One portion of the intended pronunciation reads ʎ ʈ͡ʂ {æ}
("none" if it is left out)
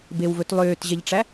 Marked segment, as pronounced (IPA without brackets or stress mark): æ